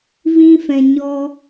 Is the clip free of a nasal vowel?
no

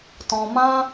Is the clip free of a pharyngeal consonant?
yes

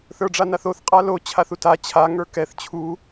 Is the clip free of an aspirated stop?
no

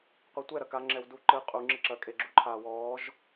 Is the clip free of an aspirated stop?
no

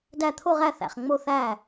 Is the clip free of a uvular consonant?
no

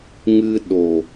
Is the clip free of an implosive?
no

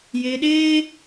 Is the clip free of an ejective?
yes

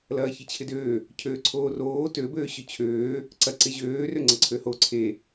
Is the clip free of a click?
no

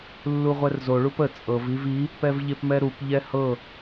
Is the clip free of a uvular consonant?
no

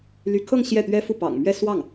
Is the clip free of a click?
yes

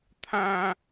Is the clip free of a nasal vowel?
no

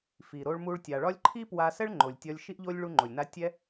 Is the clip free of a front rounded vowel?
yes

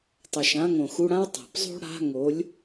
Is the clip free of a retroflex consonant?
no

